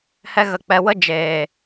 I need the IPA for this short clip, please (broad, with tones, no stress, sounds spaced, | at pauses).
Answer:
h ɛ˧ ɣ ə˨ k͡p ɛ˨ w ə˦ d͡ʒ eː˨